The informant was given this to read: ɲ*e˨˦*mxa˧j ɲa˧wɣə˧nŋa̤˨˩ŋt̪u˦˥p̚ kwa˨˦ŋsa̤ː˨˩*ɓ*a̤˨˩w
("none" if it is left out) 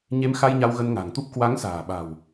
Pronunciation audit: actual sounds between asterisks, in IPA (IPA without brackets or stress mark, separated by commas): e˨˦, ɓ